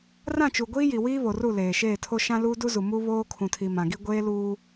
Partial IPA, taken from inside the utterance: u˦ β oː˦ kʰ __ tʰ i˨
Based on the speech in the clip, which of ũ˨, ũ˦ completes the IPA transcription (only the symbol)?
ũ˨